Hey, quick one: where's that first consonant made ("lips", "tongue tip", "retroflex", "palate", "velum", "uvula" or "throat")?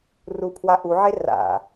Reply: tongue tip